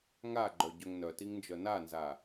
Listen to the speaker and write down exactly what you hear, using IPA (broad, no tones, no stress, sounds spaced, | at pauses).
ŋ a ɡ͡ǃ œ ɟ œ ŋ n œ t i ŋ n d͡ʒ œ n a n z a